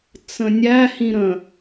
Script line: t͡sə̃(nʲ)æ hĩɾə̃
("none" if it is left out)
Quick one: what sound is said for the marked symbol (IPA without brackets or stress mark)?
nʲ